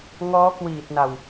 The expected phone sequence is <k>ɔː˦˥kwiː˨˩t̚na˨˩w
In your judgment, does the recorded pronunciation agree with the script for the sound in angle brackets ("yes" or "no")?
no